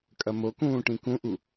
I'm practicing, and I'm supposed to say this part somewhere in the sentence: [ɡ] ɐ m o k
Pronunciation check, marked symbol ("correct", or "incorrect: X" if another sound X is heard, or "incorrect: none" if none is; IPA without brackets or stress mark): incorrect: kʼ